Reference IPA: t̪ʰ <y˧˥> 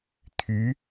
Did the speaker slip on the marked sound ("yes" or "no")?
no